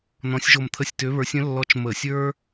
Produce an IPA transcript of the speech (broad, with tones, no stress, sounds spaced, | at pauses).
n ɔ̃˧˥ sʲ ʒ o˦˨ m t̪ʰ ə˦˨ sʲ t ø˧˥ β ə˞˧˥ sʲ ə̃˧˥ lː ɔ˧˥ t͡ʃ m ə˧˩˧ sʲ ə˞˥